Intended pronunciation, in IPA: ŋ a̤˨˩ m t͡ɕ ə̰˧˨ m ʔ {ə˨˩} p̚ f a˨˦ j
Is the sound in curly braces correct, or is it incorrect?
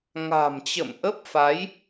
incorrect